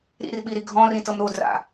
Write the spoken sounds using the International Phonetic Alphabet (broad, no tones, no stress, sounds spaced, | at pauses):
ɾ ḭ r ɓ i ɾ i ɡʱ ɔ̃ r ĩ t ɤ m ɾ o d r a̰